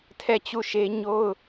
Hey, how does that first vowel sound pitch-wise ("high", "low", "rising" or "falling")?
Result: falling